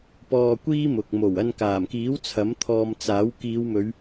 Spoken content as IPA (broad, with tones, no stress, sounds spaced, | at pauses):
p ɔː˧ kʷ iː˥ m ʊ˨ k̚ m o˨˩ w ɐ˧ n k aː˨˩ m k iː˨˥ w t͡sʰ ɐ˨˥ m t̪ʰ ɔː˧ m t͡s aː˨˥ w k iː˨˧ w m ɵ˨˧ ɥ